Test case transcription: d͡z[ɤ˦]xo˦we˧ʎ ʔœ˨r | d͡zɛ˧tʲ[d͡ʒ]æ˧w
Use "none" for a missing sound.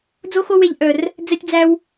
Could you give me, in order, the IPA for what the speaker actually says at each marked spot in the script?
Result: o˦, d͡z

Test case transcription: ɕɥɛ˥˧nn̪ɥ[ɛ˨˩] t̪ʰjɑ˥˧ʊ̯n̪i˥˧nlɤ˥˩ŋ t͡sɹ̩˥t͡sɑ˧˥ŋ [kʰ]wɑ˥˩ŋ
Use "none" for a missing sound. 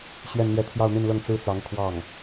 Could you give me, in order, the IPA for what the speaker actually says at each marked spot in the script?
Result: ɛ˥˧, kʰ

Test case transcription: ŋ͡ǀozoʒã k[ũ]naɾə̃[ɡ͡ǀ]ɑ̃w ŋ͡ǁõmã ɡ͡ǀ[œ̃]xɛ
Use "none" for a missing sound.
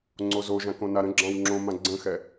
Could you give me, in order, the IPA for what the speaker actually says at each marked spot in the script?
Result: õ, ɡ͡ǁ, ə̃

